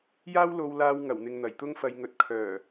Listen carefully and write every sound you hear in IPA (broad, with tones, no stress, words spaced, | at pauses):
jaː˥wlo˧wlaː˧w ŋɐ˨˩wn̪ɪ˨ŋ n̪ɐ˨˩jt̪ʊ˥ŋfɐ˧jŋɵ˧t̚ kʰœː˨˩